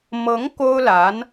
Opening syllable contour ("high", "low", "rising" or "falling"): rising